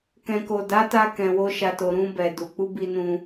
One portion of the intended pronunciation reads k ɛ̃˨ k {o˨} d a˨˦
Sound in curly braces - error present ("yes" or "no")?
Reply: no